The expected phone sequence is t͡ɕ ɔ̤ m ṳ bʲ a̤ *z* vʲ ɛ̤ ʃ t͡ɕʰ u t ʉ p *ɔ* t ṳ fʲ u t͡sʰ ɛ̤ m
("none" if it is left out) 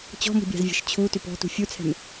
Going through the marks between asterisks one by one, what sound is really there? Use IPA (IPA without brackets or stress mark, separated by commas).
z, ɔ̤